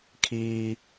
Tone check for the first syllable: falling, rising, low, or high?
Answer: low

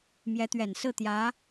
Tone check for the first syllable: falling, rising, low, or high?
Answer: rising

